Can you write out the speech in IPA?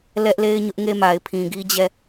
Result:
l ɛ˦ ʔ l e˦ ɪ̯ ɲ ʊ˦ ʔ ŋ e˦ m a˨ ɪ̯ pʰ ĩ˨ ɡ i˦ d͡ʑ ɛ˦˨

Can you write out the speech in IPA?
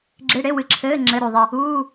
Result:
ɡ͡ǁ e˧˥˧ ɽ e˧˥˧ w ɨ˧˩ ǁʰ ɘː˧˥˧ ŋ͡ǁ ɘ˧˥˧ ɾ u˧˩ ðˤ i˧˩ | uː˧˥˧

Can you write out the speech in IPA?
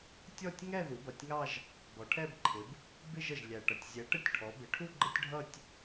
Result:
tʲ ɔ˥˧ tʲ ŋ ɛ˥˧ ð u˩˧ b ʌ˩ tʲ ŋ ɑ˥˧ ʒ | b ɔ˩˧ ʈʰ ɛ˥˧ b ǃʰ ɪ˩˧ b | b ɪ˥˧ ʒ ə˩ ʒ lʲ æ˩ ʈ ʌ˩ tʲ zʲ ɛ˩˧ ʈ ə˥˧ tʲ ʈʰ ɔ˩˧ b ɪ˩˧ ʈʰ u˥˧ ɡ͡ǃ ə˥˧ tʲ ɖʱ ʌ˥˧ tʲ

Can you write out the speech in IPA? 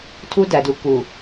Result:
tʰ u˦ d æ˨ d u˨ k u˨

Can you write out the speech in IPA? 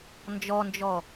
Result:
n d͡ʒ ɔ n d͡ʒ ɔ

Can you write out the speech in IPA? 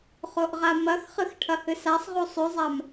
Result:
χ o ʔ ʁ a m ɐ x χ ɨ x ʈʰ ɐ h ɨ s a sˤ ʁ u sˤ ʉ zˤ a m

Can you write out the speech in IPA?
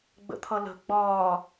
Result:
ɡ͡b ə̰ t̪ʰ ʌ l ə̤ ɡ͡b ɒː

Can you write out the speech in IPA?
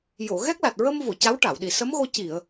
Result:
j o˨˩˨ ɣ ɛ˦˥ k̚ l a˨˩ t̚ ɹ ə˧ m v o˨˩˨ c a˧˥ w ʈ a˨˩˨ w ɗ i˨˩˨ s ə˧˥ m ɣ o˧ c i˨˩˨ ə̯

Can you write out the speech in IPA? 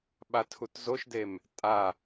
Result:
ɓ a tʰ u t z o ʃ d e m | tʼ a

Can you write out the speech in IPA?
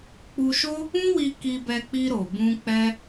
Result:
k͡p u˧ ʃ o˦ | ũ˦ w i˧ k i˧ b ɛ˧ k͡p i˧ ɾ o˨ b ũ˧ k͡p ɛ˦

